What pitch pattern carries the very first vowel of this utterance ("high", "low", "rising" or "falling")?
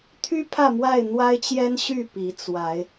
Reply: high